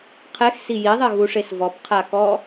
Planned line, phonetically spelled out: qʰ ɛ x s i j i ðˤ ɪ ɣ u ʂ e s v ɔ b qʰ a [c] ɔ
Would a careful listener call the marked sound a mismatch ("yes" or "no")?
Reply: yes